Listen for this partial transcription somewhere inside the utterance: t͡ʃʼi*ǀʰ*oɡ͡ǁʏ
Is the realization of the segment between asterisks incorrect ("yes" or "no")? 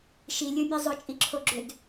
yes